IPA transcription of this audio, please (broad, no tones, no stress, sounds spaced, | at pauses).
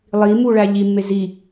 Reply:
lˠ i m u ɭ æ ʎ i mː e z i